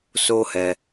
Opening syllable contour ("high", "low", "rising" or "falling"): high